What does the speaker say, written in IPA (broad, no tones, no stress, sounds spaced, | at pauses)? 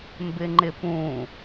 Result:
m b ɪ ŋ͡ǃ ɪ p ũ